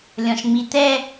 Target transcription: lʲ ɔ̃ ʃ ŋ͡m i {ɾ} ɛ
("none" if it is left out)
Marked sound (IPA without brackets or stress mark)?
t̪